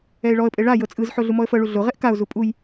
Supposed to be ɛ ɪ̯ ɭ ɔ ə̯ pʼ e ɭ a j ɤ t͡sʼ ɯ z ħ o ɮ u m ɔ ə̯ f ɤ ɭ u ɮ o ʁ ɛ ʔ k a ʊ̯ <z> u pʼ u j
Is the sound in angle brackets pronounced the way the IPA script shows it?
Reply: yes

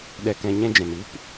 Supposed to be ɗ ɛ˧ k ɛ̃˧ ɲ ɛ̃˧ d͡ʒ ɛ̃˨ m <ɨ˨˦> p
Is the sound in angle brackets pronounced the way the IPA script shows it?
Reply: no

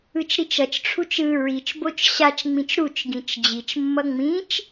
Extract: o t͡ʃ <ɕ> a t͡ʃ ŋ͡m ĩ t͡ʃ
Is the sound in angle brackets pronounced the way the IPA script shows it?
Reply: yes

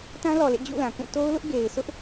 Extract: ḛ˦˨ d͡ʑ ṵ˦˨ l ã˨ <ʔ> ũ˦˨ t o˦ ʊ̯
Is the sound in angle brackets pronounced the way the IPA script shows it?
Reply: no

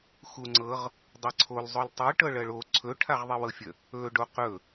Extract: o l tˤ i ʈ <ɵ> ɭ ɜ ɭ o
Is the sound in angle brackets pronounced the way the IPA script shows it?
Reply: no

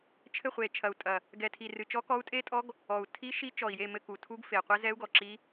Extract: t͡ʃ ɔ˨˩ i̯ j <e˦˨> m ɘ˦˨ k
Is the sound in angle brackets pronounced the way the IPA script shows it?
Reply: yes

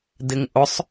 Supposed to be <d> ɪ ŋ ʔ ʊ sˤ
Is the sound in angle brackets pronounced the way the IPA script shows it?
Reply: yes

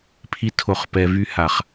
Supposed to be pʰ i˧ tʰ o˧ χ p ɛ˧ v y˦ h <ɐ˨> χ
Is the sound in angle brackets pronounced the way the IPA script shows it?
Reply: no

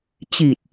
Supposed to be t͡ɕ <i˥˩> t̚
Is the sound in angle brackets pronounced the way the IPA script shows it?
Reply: no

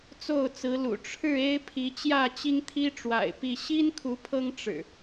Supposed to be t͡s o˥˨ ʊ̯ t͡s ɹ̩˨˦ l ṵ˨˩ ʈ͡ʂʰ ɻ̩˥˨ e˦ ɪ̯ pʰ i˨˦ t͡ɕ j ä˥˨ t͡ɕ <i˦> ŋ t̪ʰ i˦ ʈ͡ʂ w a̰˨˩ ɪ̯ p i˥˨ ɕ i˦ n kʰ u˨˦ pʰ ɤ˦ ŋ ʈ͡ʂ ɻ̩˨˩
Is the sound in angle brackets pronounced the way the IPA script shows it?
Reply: yes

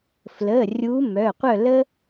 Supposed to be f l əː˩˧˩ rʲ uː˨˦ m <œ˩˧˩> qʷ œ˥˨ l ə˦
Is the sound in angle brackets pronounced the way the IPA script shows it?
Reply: yes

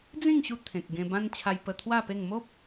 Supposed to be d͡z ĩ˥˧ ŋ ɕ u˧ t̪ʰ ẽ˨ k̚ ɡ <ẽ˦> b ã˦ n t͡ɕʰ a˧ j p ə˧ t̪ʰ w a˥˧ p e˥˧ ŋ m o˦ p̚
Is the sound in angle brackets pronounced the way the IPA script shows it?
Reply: no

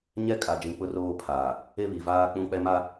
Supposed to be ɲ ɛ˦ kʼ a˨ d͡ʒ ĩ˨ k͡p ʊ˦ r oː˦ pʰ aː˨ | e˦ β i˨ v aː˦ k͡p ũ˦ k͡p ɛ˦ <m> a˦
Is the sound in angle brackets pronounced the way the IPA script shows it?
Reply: yes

